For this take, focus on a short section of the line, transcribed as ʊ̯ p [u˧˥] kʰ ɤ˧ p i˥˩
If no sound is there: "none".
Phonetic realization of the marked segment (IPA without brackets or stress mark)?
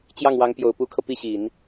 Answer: u˧˥